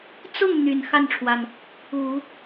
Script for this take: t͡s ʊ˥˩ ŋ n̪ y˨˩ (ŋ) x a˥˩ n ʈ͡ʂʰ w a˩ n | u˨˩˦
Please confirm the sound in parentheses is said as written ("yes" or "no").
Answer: no